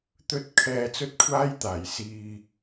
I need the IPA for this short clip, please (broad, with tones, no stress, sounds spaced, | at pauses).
t̪ ɵ˧ t̚ kʰ ɛː˧ t͡s ɵ˥ t̚ kʷʰ aː˥ j t̪ aː˨˩ j s iː˨